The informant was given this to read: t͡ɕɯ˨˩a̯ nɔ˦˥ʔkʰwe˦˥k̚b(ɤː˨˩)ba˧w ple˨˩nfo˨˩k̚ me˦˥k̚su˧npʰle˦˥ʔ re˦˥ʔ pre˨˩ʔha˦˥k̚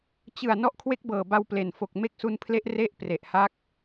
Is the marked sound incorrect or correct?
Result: correct